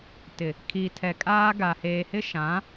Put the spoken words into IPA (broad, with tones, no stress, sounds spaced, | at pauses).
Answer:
t ɪ˨ | kʰ i˨ tʰ ɛ˨ kʼ aː˦ ɡ a˨ h eː˨ h ɪ˦ ʃ ã˨˦